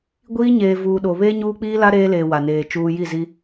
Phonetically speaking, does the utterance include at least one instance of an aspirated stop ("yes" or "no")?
no